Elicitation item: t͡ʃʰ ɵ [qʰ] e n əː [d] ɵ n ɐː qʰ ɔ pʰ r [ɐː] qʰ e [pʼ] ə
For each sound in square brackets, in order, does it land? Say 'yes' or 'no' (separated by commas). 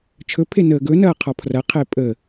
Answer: no, no, no, yes